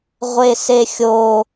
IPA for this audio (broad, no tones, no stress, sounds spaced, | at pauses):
ʁʷ e s e xʲ o